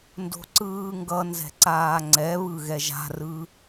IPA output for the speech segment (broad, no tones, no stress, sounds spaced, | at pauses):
n d o̤ ǀ ɯː ŋ ɡ ʌ n z ɛ̤ ǀ aː ŋ͡ǀ ɛ β ɯ ɣ ɛ ʒ a̤ r ɯ